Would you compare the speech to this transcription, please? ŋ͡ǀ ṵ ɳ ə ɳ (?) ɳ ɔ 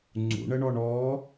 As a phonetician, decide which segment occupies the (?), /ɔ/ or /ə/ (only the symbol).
ɔ